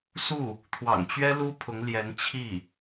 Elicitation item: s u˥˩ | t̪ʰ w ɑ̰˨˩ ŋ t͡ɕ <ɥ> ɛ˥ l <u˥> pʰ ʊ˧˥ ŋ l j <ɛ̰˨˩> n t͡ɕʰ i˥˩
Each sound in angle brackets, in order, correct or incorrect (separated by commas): correct, correct, incorrect